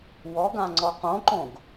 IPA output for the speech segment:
wɔɡã ŋ͡ǀɔqõǃõɡ

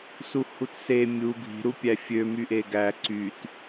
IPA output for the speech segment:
suhutse mʲu ɡʱi̤ ɾupʲæfʲø myʔeɡæ ǀyt

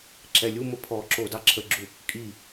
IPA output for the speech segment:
ǁɛlʲumə pʰɔǁo dɑǁʰəɡ͡ǁu | kʼi

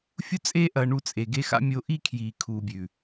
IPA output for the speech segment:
fʲu˦t͡sʼeː˦ ʔɐː˧ɳu˧t͡sʼe˨ ɡe˧xa̰˧ mʲo˧ʔi˦kʰjiː˨ kʰuː˨bʲʉ˨

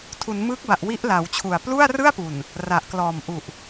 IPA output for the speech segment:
tʰu˩˦nmɯː˦˥k̚ba˨˩ʔ wi˦˥ʔla˩˦wt͡ɕʰu˨˩a̯ plu˥˩a̯rɯ˥˩a̯pu˨˩n | ra˨˩ʔklɔː˨˩mʔu˨˩ʔ

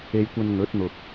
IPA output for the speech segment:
e˥jkʷɐ˥n ŋɵ˨˥t̚n̪ʊ˨k̚

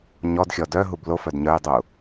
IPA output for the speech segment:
ɲɔdxʲɔ dœɦub lofœd ɲœjdˤu

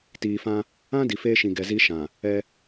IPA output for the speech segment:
tiː˨fã˦ | ã˦ di˨feː˦ʃĩ˨ ɡɛ˨zi˦ʃã˨ | ɛ˦

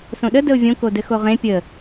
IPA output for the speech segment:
sõɗə dəʊ̯vʲõ kodɘxoʁẽ pʲə

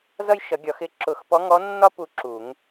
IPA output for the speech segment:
zʌ˦j ʃʌ˨˩˦ɡʲɒ˨˩˦x ɪ˨˦ ǁʊ˨˩˦xpɔ˨˦ ŋɔ˨˦nːɒ˦ pu˦ǁu˨˩˦ŋ

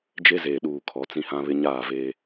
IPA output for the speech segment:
d͡ʒe˦zeː˨ɗuː˨ kʰɔ˨˦t͡sĩ˦hã˦βɪ˦ ɲaː˦˨veː˦

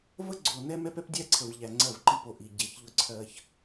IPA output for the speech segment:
və˦ ɡ͡ǀo˨ nɛ˦mɛ˦p ɛ˦pdʲæ˦ǀʰə˨v ʎæ˨ŋ͡ǀɜ˦˨vǃi˦˨po˨ ʔi˨ ɟe˨˦çʎʊ˦ǀʰɜ˦ç

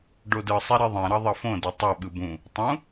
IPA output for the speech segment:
ɖodɯsˤi ɾeðˤɛ̃ɾʌ ðˤʌfõde tˤʌɓɯ bũ | tˤũ

